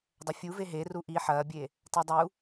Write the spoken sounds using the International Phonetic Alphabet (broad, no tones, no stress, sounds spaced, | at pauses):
dˤ ɐ fʲ u v e ɦ e r u ʔ i ħ ɐː bʲ e | t a dˤ u